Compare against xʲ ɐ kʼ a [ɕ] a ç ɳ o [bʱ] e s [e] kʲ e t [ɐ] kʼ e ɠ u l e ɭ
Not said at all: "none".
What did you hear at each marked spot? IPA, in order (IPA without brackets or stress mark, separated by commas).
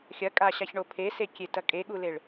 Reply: ɕ, pʰ, e, ɐ